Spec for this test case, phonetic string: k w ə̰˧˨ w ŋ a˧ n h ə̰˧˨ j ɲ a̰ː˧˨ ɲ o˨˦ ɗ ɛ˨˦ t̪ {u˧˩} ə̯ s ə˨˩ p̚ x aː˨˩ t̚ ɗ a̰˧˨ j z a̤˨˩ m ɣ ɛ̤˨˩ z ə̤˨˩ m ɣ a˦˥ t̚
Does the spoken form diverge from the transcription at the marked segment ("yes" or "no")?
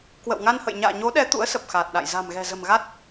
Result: yes